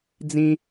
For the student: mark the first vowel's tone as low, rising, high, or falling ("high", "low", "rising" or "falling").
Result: high